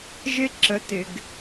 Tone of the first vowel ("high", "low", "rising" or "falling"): high